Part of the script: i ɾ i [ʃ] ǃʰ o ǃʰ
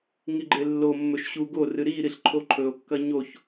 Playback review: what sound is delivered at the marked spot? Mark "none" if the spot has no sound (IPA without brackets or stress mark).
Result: ɬ